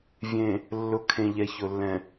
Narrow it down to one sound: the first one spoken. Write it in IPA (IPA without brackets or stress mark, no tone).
vʲ